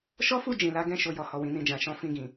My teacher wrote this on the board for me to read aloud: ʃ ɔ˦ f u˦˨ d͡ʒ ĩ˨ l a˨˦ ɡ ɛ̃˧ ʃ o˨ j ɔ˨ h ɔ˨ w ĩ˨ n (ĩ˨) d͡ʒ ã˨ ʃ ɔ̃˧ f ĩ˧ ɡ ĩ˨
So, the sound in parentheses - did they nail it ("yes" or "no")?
yes